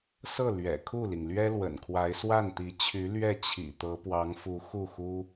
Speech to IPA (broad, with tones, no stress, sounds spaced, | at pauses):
s ɤ˥˩ l ɥ ɛ̰˨˩ kʰ u˥˩ l i˩ ŋ l ɥ ɛ˥ l w ə̰˨˩ n kʰ w a˧˥ ɪ̯ s w a˥˩ n t̪ i˧˥ t͡ɕʰ y˧˥ l ɥ ɛ˥˩ t͡ɕʰ ḭ˨˩ t̪ ɤ˧˥ p w ɑ˧˥ ŋ f u˧˥ x u˥˩ x u˥